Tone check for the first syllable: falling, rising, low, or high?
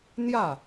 falling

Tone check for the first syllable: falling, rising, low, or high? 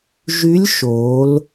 rising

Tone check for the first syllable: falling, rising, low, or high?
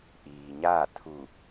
low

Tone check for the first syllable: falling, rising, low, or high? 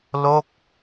falling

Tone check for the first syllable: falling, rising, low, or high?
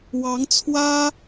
rising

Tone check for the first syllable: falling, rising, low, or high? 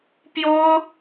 high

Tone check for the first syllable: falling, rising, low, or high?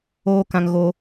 high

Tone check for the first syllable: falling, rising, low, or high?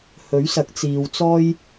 rising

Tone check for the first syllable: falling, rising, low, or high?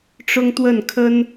high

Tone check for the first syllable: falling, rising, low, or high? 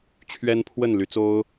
high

